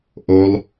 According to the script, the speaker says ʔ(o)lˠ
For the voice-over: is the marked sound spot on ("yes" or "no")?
yes